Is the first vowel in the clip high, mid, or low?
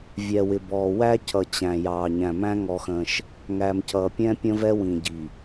mid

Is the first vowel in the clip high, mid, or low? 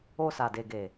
mid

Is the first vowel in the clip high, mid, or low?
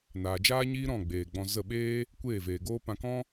low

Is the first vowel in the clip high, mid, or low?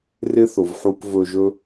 high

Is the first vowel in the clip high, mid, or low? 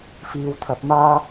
high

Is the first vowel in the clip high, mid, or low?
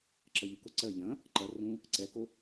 mid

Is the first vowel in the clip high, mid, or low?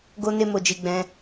mid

